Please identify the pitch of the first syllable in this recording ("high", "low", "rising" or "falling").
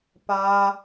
high